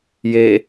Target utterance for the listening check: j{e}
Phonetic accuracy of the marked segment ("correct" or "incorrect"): correct